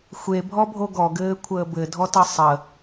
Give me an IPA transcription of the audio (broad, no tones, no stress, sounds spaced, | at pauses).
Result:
xʷ e bʱ ɔ bʱ o ɡ ɔ ɡ ɘː kʷʰ əː b ɘ dʱ ɔ t ʌ sˤ ə